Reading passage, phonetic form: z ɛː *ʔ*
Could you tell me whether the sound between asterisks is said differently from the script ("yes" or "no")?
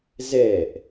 no